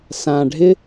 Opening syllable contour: low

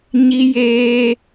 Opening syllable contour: high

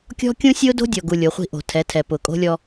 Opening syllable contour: high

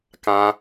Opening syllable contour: high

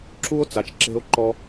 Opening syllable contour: high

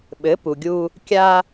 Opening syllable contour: rising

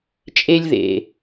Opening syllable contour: high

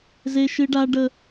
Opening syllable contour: high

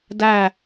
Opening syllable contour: falling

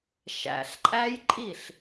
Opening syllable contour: low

